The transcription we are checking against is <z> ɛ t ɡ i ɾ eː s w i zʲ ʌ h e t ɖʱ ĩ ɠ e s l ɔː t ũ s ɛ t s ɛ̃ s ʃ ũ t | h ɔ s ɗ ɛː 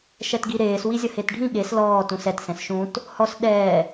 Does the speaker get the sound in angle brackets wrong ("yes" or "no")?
yes